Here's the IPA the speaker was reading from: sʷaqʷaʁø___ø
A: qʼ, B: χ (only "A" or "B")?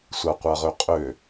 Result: A